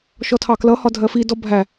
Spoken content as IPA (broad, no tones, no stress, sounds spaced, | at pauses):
ʃ ɔ tʰ ɑ k l ʌ h ɒ dʱ ɜ f i d ɔ bʱ æ